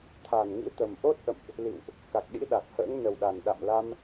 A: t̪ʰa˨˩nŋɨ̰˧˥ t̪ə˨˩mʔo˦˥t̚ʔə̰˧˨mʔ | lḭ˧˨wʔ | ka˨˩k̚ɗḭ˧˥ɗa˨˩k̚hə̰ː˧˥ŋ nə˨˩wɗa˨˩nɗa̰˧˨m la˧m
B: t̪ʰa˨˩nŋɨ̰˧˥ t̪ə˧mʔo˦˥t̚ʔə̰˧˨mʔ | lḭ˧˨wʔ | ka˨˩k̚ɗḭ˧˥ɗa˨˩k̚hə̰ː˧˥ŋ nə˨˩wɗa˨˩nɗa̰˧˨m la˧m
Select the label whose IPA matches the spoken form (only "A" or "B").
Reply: A